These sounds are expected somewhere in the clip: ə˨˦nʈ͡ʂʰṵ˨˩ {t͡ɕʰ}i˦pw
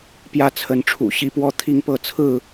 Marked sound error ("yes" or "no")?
yes